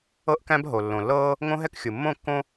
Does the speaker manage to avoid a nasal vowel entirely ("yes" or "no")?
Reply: no